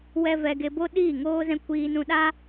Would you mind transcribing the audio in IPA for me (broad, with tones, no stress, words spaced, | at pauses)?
wɛ˦ vɛ˧ɡe˧bo˦ ɗiː˦˨ŋoː˦zɛ̃˦ kʷiː˧nũ˧ɗa˦